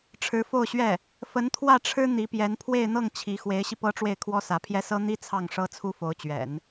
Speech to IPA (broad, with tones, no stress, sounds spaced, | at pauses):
ʈ͡ʂʰ ɻ̩˧˥ f o˥˧ ʊ̯ ɕ ɥ ɛ˥˩ | f ə˧˥ n t̪ʰ w ä˥˩ ʈ͡ʂʰ ɻ̩˥ n̪ i˧˥ p j ɛ˧˥ n pʰ w e˥˧ ɪ̯ n̪ ɤ˥˩ ŋ t͡ɕʰ i˧˥ x w e˧˥ ɪ̯ ɕ i˧ p ɤ˥ ʈ͡ʂ w e˥˩ ɪ̯ kʰ w ɔ˥ s ä˧˥ pʰ j ɛ˥ s ɤ˥ n̪ i˥ t͡sʰ ɑ˥˩ ŋ ʂ ɤ˥ t͡sʰ u˥ f o˧˥ ʊ̯ t͡ɕ ɥ ɛ̰˨˩˦ n